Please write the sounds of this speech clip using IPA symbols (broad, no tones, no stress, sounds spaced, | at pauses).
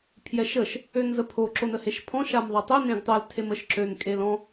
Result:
pʰ j ɛ ʃ ə ʃ | ø n z ə pʰ o ǁ o n ə h e ʃ pʰ ɔ̃ ʃ a m ðˤ a tˤ ø n ẽ ɡ tˤ œ l tʰ e m ə ʃ ǁ ø n kʼ e l ɔ̃